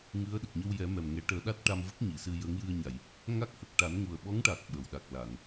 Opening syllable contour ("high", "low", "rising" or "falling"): rising